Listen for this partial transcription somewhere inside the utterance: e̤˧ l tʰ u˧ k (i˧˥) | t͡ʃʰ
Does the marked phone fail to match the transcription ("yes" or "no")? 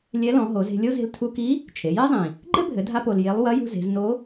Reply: no